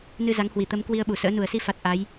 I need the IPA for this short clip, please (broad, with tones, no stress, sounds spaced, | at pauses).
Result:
n ɨ˧ z a˨˦ ŋ h w i˧˩ t̪ ə˨˦ m k w i˧ ə̯ ɓ u˧˩ s ə̰ː˧˥ n u˧˩ ə̯ s i˧ f a˨˩ t̚ ʔ a˨˦ j